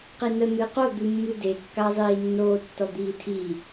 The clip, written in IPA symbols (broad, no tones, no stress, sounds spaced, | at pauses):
q i n ə n̪ ɨ q o d̪ ɨ mː ɨ d e kː a zˤ iː nː oː tː ɔ d̪ iː tʰ i